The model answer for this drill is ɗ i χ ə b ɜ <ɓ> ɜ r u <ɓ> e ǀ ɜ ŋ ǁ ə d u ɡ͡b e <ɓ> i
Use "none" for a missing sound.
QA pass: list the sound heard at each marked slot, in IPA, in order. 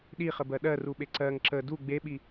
ɗ, ɓ, ɓ

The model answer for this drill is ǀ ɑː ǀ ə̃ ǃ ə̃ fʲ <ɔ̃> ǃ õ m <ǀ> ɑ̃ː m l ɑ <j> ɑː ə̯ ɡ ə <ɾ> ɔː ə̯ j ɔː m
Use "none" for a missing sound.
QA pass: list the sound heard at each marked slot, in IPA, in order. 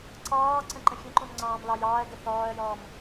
ə̃, ŋ͡ǀ, j, θ

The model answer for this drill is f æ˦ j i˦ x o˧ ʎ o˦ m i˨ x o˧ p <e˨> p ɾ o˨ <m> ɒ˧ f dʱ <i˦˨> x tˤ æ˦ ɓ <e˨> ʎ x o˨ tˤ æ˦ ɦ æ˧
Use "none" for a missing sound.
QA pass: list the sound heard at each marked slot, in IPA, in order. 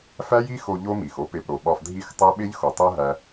e˨, ɓ, i˦˨, e˦

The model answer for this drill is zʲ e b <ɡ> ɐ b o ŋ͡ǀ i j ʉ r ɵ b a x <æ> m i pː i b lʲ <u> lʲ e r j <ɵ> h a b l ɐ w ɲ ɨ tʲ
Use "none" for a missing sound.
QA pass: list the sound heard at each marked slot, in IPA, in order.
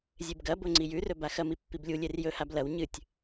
ɡ, ɐ, u, ɵ

